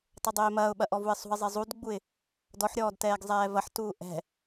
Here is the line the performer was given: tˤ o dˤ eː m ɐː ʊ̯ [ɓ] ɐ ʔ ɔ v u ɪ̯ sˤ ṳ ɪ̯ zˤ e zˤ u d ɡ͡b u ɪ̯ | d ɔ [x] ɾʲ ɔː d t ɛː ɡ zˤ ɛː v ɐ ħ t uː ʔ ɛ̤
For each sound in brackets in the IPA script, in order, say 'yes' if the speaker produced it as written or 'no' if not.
yes, no

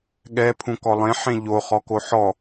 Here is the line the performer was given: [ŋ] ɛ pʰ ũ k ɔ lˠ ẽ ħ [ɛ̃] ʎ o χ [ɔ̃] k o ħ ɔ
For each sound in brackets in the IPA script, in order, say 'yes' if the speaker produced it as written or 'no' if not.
no, no, no

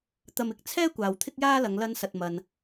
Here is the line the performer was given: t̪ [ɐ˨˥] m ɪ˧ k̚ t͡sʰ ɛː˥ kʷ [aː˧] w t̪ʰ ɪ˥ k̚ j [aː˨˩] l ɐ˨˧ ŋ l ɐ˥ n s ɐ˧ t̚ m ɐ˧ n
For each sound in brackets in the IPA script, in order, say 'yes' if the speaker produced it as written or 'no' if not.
no, no, no

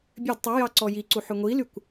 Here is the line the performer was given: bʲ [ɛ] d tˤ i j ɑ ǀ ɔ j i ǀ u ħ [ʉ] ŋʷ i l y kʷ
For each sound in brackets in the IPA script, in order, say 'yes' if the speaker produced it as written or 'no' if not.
no, yes

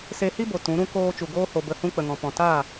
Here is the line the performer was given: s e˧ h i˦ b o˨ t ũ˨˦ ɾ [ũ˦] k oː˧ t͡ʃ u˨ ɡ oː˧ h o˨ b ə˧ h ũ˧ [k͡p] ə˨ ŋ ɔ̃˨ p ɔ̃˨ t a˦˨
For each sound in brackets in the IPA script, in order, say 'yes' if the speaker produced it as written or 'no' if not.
yes, yes

